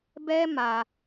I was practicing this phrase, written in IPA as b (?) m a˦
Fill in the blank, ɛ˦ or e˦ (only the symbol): ɛ˦